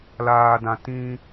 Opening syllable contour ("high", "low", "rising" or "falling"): low